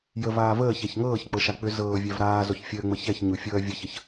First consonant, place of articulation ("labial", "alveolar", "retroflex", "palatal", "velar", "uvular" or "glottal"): palatal